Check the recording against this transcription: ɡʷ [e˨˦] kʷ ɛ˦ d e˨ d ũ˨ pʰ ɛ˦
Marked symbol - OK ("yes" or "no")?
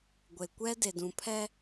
no